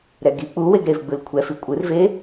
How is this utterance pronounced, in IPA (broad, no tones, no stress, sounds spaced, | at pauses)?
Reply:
ɾ ɛ ɡ i k͡p u w e ɡ ɾ e v ɡ͡b ɯ l kʷʰ ɛ f i kʷʼ ɯ r v e